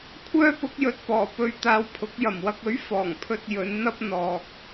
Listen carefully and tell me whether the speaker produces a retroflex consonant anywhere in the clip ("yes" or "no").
no